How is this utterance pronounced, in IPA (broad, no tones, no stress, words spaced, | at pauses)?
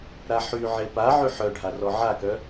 ɾaħyʕe pa ʕyħœɖʱa rɔʕakœ